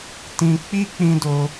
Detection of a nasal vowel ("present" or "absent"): present